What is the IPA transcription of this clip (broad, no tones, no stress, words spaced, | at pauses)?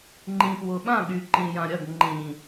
ŋ͡ǃĩpwʊɓã ɠyǃĩjãɾʲɐɡ ŋ͡ǃĩ